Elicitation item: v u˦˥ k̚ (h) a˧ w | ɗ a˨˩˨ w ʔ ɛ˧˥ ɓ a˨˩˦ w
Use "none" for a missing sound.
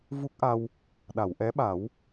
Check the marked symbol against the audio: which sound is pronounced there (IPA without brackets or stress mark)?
ʔ